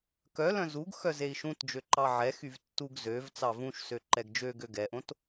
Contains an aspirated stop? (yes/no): no